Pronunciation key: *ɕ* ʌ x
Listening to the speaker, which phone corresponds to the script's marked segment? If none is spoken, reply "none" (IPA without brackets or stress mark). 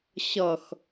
ɕ